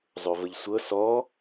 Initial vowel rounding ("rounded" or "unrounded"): rounded